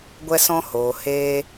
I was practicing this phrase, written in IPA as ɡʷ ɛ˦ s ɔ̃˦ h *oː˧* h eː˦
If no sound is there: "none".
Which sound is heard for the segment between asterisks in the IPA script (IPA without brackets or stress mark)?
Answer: oː˧